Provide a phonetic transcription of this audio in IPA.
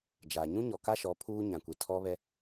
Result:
d͡ʒ a˨ ɲ ũ˦ ɲ ɔ˨ k a˦ ʃ ɔ˨˦ pʰ uː˦ ɲ ã˨ kʷ i˨ tʰ ɔ˦ β ɛ˦

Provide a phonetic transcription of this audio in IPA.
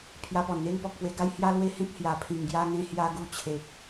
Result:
pʰ j a˧ p ɔ˨˩ n n̪ e˦ ŋ p ɔ˨ k̚ p w e˧ ɡ a˦ j h j a˦ l w e˦ h ẽ˦ k̚ h j a˨˩ pʰ ĩ˨˩ ŋ ɡ j a˧ ŋ ẽ˧ h j a˧ ɡ u˧ t͡ɕʰ e˨ k̚

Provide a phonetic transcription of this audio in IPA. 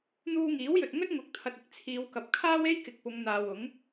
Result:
n̪ uː˧ ŋ iː˨˥ w j ɵ˨ t̚ ŋ ɵ˥ t̚ ŋ ʊ˨˥ k̚ t̪ʰ ɐ˨ t̚ ɪ˨˥ k̚ t͡sʰ iː˨˧ w k ɐ˨ p̚ kʰ aː˥ w e˥ j k ɪ˨ k̚ p ʊ˨˧ ŋ n̪ aː˨ w ʊ˨˥ ŋ

